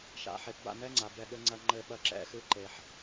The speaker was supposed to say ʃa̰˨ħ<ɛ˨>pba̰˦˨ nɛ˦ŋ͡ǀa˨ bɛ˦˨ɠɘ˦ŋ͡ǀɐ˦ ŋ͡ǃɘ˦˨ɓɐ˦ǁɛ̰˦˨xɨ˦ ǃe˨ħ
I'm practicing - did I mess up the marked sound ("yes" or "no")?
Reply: yes